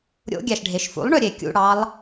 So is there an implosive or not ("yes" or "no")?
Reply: no